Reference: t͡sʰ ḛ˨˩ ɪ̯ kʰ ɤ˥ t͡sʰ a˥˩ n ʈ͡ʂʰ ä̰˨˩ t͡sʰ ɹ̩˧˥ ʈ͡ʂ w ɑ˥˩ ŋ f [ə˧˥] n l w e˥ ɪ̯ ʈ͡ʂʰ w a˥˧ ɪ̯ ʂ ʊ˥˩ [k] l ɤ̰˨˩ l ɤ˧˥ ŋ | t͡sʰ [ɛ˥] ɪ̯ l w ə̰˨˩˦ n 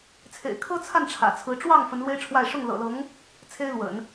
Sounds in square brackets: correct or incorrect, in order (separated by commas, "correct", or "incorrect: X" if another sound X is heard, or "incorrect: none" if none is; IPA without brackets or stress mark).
correct, incorrect: ŋ, incorrect: e˥